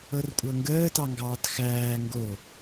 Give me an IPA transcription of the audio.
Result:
ɤ r kʷʼ ɤ ŋ ɡ əː t ɑ ŋ ɡ ɑː t x æː ŋ ɡ o

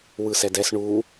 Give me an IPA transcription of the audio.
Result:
w ɯ s ɛ d ɛ s ɳ u

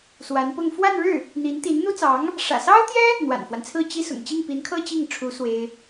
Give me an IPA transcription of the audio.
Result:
s w a˧˥ n p ʊ˥˧ ŋ f w a˥˧ n ɻ ɻ̩˥˩ | n̪ i˧˥ n t̪ i˧˥ n n̪ u˥ t͡s ɑ˧˥ ŋ | ʂ ä̰˨˩ s ɑ˥ ʊ̯ t̪ j ɛ˥ | n̪ w a̰˨˩ n f w a˦ n t͡sʰ ɹ̩˥˩ t͡ɕ i˥ s ʊ̰˨˩ ŋ t͡ɕ i˥˩ ŋ p i˧˥ n kʰ ɤ˥ t͡ɕ i˥˩ ŋ ʈ͡ʂʰ u˧˥ s w e˥ ɪ̯

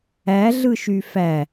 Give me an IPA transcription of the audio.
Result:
æ ɮ ɯ ʃ y f æ

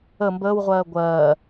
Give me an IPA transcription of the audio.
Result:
ə m b əː w ʁʷ ɜː ɡʷ ɜː

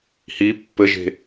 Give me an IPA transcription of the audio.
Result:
h i pː ɘ ʒ e̤

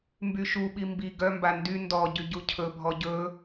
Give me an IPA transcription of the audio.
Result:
m b y ʃ u ɓ i m b i ɡ œ m b a n d y n d ɔ ɟ y ɟ u cʰ ɵ bʱ ɔ ɟ ɵ

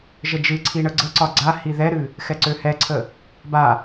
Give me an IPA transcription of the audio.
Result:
ʒ ə d͡ʒ ɨ ǀʰ i ɳ ə ɡ͡ǀ ə ǀ ɒ ɡ͡ǀ a h i ð ɛ ɾ ɨ | x ɛ ǀ ø h ɛ ǀʰ ə | b a

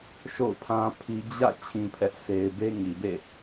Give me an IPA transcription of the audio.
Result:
ʃ o̰˦˨ ʊ̯ pʰ ã˦ pʰ i˦ d͡ʑ ä̰˦˨ t͡ɕʰ ĩ˦ pʰ ɛ˦ ʔ sʰ e˦ ɪ̯ b e˦ ŋ i˨ b ḛ˦˨

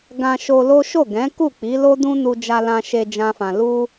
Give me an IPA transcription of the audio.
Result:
ɡ ã˧ ʃ o˧ l o˦ ʃ o˦˨ ɡ ɛ̃˨˦ k u˦˨ k͡p i˨˦ l o˦ d ũ˦ n u˧ d͡ʒ a˧ l ã˧ ʃ e˧ d͡ʒ ã˦ f ã˧ l u˦

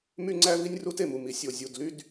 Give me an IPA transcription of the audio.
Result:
m y˥ ŋ͡ǀ æ˥ v i˥ nʲ r u˥ t e˩ m u˩ m i˩ sʲ o˩ zʲ u˩ d l y˥ d

